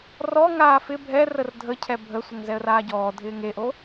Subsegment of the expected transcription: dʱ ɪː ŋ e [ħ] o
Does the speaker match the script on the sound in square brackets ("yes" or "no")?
no